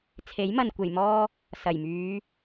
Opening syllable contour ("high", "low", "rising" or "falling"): rising